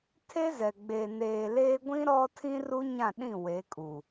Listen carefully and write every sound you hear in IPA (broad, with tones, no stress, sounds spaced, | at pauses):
tʰ e˦ z ɛ˨ ɡ͡b eː˨ n eː˨ l eː˦ ɡʷ ĩ˦ ɾ ɔ˦ tʰ ĩ˦ r u˦ ɲ ã˦˨ ɗ ĩ˦˨ w e˨˦ kʼ u˨